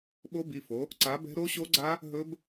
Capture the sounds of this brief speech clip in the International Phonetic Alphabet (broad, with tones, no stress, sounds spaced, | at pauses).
ɓ o˦˥ b i˩˧˩ f o˨˦ | ǀ a˨˦ b ɛ̤˦˥ ɾ o˦˥ ɕ o˦˥ ɡ͡ǀ a˦˥ | ɦ ɵ˦˥ b